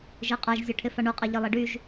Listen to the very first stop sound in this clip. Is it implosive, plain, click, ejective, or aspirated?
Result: ejective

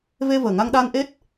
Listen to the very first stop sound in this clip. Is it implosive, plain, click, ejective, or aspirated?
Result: implosive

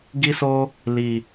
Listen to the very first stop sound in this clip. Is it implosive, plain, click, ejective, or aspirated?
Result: plain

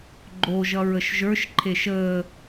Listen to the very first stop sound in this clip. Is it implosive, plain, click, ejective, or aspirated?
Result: click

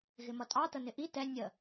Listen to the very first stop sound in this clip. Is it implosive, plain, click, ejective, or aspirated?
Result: ejective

